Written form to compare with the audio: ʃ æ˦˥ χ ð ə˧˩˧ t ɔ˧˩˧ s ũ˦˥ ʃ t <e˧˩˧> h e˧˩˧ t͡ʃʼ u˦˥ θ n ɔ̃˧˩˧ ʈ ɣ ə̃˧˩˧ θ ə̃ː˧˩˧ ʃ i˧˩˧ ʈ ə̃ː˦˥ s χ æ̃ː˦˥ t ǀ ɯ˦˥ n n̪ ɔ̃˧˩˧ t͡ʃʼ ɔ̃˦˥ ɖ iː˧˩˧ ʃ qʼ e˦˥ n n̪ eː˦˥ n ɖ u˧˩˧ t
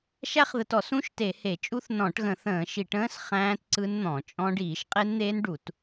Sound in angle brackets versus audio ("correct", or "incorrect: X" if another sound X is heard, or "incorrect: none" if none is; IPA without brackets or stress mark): correct